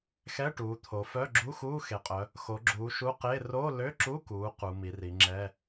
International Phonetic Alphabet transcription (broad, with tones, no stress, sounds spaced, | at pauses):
x ɛ˧˥˧ ʈ uː˩˧ t̪ʰ o˩˧ f œ˧˥˧ ɡ͡ǁ u˧˥˧ x uː˧˥˧ x e˩˧ qʼ œ˩˧ | x o˩˧ ɡ͡ǁ uː˩˧ ʃ u˧˥˧ q e˧˥˧ r o˧˥˧ l ø˧˥˧ ǁ u˧˥˧ k uː˩˧ q u˩˧ m i˩˧ r i˩˧ ŋ͡ǁ ɛ˧˥˧